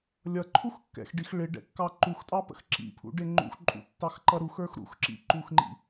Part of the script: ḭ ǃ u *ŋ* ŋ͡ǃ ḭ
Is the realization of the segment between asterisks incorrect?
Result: yes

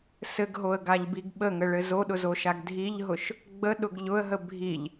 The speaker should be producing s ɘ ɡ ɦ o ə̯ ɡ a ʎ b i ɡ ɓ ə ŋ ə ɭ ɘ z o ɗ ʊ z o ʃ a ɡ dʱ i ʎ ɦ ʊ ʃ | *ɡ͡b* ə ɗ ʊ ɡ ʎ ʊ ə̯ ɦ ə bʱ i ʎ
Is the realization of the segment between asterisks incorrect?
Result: no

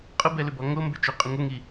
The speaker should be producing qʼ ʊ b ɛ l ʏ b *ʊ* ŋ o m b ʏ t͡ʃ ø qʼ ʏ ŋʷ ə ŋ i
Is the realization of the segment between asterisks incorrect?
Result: yes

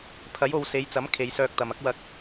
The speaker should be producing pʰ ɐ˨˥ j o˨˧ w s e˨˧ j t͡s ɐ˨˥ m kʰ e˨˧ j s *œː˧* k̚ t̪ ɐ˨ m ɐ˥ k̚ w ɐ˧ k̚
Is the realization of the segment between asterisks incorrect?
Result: no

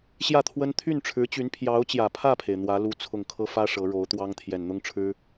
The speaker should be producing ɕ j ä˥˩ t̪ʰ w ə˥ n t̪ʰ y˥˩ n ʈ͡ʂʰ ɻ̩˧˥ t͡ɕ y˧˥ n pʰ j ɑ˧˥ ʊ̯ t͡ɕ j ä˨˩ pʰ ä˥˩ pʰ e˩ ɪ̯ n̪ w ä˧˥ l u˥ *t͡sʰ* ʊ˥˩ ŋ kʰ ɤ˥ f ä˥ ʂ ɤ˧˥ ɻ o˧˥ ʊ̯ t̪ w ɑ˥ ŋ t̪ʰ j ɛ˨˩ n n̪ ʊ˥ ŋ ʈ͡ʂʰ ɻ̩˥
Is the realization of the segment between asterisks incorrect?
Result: no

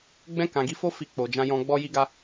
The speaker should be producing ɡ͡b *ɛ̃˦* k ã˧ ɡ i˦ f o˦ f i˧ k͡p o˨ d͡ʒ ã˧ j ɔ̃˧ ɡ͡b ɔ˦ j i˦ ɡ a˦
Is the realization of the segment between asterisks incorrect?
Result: no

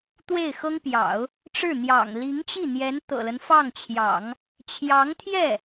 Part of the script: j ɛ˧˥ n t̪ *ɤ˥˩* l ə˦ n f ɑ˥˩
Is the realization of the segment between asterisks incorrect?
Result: yes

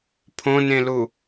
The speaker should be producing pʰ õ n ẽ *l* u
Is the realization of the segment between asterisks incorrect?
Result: no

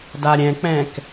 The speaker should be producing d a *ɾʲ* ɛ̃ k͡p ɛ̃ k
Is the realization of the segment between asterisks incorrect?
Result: no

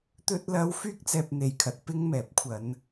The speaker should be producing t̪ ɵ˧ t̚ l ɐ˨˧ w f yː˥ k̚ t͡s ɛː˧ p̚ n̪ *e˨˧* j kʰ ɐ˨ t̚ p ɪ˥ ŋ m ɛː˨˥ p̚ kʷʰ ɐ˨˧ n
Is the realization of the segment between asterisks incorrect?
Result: yes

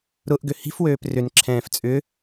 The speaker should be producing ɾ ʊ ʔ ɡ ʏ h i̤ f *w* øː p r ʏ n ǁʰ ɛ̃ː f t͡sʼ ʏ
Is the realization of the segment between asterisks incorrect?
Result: no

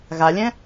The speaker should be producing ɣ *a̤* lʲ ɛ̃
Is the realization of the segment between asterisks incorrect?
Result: yes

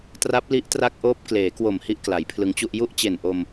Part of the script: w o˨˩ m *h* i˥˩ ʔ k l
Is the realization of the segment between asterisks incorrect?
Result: no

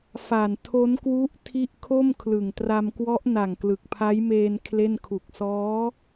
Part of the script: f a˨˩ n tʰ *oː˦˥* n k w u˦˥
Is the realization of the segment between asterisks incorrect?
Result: yes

